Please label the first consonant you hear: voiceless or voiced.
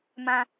voiced